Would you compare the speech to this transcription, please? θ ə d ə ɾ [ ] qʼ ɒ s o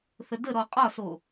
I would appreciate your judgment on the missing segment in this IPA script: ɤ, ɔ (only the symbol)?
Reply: ɔ